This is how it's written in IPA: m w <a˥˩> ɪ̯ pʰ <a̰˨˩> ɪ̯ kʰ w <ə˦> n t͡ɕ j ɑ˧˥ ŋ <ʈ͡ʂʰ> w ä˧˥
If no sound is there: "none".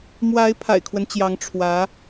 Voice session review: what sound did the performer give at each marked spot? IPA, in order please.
a˧˥, a̰˨˩, ə˦, ʈ͡ʂʰ

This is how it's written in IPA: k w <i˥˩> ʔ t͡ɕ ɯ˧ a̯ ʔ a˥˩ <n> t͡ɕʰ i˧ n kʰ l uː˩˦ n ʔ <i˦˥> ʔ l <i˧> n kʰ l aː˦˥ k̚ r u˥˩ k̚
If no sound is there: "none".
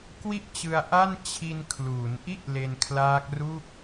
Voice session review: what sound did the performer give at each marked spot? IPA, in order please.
i˥˩, n, i˥˩, e˧

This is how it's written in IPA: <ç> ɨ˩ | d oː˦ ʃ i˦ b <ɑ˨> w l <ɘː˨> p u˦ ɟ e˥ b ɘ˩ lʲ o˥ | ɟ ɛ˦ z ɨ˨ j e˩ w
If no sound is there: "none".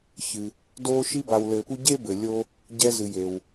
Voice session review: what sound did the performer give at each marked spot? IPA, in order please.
ç, a˨, ɘː˨

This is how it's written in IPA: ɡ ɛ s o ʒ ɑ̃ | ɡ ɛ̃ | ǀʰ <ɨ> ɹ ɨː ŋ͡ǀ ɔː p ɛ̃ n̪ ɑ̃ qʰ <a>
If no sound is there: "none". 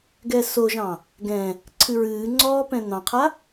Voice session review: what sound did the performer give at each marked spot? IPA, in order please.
ɨ, a

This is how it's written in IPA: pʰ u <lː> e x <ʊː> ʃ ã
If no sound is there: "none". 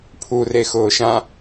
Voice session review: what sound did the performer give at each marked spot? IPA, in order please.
r, ʊː

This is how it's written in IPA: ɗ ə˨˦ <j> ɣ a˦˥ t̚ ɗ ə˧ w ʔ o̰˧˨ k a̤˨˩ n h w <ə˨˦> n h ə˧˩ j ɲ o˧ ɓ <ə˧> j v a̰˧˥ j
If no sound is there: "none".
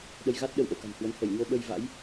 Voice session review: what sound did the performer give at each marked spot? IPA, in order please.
j, ə˨˦, ə˧

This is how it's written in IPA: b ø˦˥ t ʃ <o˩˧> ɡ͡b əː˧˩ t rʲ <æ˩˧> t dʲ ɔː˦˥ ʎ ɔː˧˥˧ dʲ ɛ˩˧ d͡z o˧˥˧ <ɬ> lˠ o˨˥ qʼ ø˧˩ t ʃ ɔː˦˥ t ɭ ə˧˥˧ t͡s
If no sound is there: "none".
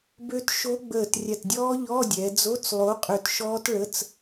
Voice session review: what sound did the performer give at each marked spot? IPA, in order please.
o˦˥, æ˧˩, t͡s

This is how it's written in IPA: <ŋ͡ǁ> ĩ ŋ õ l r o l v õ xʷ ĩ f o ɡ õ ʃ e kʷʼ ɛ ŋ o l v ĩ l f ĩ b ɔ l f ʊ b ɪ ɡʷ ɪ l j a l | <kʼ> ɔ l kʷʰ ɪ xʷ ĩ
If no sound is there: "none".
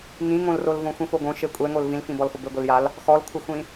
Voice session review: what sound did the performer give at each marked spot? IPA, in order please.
ŋ, x

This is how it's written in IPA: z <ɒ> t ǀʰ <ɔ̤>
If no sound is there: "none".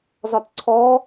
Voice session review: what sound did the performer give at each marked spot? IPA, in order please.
ɒ, ɔ

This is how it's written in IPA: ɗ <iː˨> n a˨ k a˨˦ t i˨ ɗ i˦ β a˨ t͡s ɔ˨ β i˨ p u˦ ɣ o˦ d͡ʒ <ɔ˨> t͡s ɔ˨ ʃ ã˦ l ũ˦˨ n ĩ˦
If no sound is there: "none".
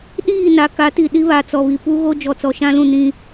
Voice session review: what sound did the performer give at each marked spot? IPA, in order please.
iː˦˨, ɔ˨

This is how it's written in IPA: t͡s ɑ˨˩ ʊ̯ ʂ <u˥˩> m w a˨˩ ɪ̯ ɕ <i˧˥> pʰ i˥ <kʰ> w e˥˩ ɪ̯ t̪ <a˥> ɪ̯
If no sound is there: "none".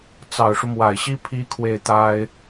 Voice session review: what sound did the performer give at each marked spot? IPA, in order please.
u˦, i˥, kʰ, a˥

